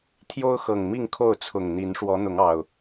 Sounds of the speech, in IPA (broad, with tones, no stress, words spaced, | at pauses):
t̪ʰjo˦ʊ̯xɤ˨˩ŋ mi˥˨ŋkʰo˥˨ʊ̯t͡sʰʊ˨˩ŋn̪i˨˦n ʂwɔ˨˦n̪ʊ˨˦ŋɑ˨˩ʊ̯